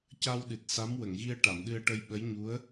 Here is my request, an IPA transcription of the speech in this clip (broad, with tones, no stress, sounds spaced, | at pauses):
c a˧ w ɗ ɨ˨˩ t̚ s a˧˥ m w ə˨˩˨ ŋ ɣ i˧ ə̯ ʈ a˨˩˨ m ɗ ɨ˧ ə̯ ʈ ə˧ j ɓ ə˧˥ j ɲ u˧˥ ə̯